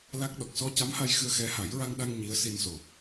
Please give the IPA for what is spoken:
l a˦˥ k̚ ɗ ɔ˨˩ k̚ s ɔ˧ c a˧˥ m h a˧ j x ɨ˧ ə̯ x ɛ˧˥ h a˨˩˦ j ɹ a˧ ŋ ɗ a˧ ŋ ɲ i˧˥ ə̯ s i˧ n s o˨˩

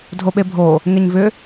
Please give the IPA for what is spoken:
dʱ o ɓ e bʱ o | ŋ e ɲ v ʏ

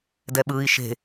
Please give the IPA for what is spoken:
d ɛ ɓ ɯː i̯ ʃ e̤

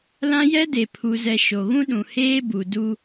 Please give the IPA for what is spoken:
l ã˦ j ɛ˦ d e˨ pʰ u˨ z ɛ˨ ʃ o˨ ɣ ũ˦ ɗ ũ˨ h eː˦ b u˨ d u˦

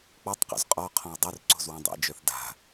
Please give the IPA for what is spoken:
k͡p ɔ tˤ q o̰ z qʼ ɔ qʰ ɔ̃ w dˤ o r ǀ o̤ z w ɔ̃ dˤ ḛ d͡ʒ œ θ d a̤

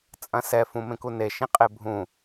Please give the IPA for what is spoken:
t͡sʼ ɐ̃ s ɛ f ũ m ẽ k u n e ʃ ĩ qʼ e bʱ ũ

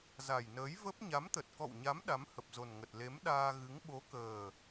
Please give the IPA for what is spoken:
z a˨˩ j n əː˨˦ j v ə˦˥ p̚ ɲ a˨˦ m t̪ ə˨˩ t̚ k ɔ̰˧˨ w ɲ a˨˦ m ɗ a˨˦ m h ə˨˩ p̚ z o˨˩ n ŋ ə˨˩ t̚ l e˨˦ m ɗ aː˧ ɣ ɨ˨˦ ŋ ɓ o˨˦ k əː˨˩

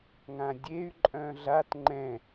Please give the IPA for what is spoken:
ŋ ã dʲ e y̯ ǃʼ œ̃ ɮ a t ŋ͡ǃ ɛ̃

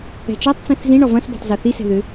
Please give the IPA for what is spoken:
ɛ̤ t͡ʃ ɔ tˤ t͡s ĩ θ z ĩ ɳ ɔ v ɐ̃ s b ɛ̤ tˤ z ɤ θ i s ɛ̤ ð ʏ

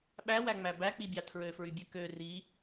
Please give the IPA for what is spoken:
ɓ æ w æ ŋ͡m æ b æ k͡p i bʲ ɑ tʰ ɹ ø f ɹ y bʲ ø k ø r i

